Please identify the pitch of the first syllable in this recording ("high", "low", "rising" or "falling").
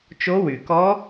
rising